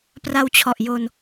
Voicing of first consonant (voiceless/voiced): voiceless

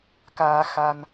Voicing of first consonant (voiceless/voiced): voiceless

